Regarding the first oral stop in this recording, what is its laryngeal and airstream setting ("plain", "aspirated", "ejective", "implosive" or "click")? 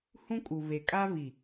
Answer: ejective